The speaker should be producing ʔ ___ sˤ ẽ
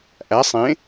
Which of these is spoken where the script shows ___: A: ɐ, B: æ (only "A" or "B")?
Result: B